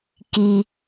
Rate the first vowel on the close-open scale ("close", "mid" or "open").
close